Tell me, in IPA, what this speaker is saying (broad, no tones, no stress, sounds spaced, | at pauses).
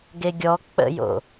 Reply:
ɡ e ɡʲ ɔ k͡p ə̰ j o̰